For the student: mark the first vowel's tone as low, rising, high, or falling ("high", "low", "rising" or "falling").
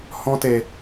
high